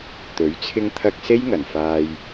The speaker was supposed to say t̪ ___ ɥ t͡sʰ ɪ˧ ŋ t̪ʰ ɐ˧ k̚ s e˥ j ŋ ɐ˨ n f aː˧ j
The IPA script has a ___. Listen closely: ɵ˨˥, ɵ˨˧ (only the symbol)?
ɵ˨˥